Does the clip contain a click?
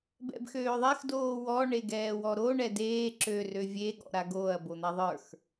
yes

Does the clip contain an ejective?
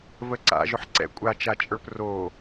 yes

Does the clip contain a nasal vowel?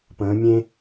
yes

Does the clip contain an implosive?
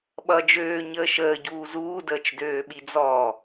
yes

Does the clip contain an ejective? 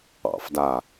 no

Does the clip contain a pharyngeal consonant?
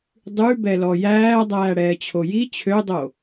no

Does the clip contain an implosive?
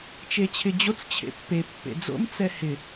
no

